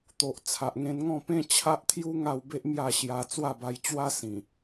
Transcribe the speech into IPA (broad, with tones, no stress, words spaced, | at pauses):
t̪o˨ʔ t͡sʰa˨ʔŋẽ˧n ŋɔ̃˥˧pẽ˦ t͡ɕʰa˦ʔt̪ʰju˦ ŋa˥˧wbe˦ʔmja˥˧ɕja˧ t͡swa˥˧ba˧jt͡ɕwa˦ sĩ˨˩